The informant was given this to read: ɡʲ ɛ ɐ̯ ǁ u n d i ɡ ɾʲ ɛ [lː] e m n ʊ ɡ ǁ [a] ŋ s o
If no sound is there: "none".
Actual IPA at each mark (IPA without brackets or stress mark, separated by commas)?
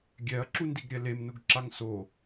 l, a